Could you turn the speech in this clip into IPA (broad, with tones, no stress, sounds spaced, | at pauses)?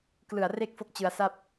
k l ɯ˨˩ a̯ r e˥˩ k̚ f o˦˥ k̚ t͡ɕ ɯ˧ a̯ s a˥˩ p̚